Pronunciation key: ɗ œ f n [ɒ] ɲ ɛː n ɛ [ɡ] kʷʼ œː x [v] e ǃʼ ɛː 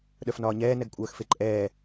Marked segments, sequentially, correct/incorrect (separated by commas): incorrect, correct, incorrect